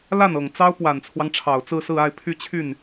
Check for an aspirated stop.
present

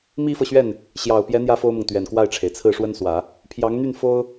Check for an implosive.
absent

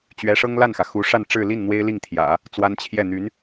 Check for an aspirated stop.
present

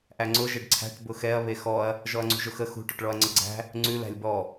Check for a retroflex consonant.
present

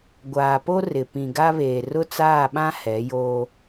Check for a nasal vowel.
present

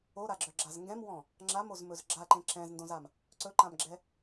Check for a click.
present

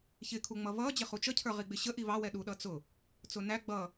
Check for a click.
absent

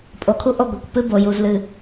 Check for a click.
absent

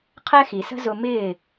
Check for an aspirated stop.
present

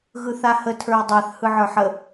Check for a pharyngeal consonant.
present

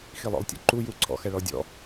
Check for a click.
present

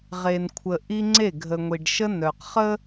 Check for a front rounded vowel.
present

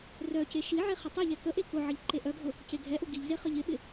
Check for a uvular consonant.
present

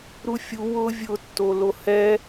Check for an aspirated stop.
absent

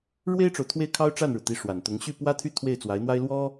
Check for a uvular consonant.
absent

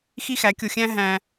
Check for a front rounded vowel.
absent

